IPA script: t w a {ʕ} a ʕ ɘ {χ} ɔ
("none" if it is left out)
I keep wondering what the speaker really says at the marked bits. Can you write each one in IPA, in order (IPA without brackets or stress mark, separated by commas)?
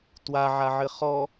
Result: ʕ, χ